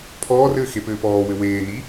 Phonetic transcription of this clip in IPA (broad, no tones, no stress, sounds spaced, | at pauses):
pʰ ɔː r ɘː x e p ɘː p ɔː w ɘ w eː n i